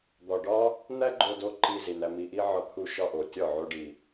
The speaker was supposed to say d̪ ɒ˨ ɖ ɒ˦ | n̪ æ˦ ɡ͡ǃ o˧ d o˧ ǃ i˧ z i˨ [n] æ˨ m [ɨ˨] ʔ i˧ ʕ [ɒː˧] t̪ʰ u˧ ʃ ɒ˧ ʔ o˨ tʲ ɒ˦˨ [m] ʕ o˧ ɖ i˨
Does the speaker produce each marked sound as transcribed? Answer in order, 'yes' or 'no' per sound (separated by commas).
yes, no, no, no